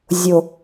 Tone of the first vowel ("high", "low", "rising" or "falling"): falling